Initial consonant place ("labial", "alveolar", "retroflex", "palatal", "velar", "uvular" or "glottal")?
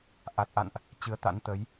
glottal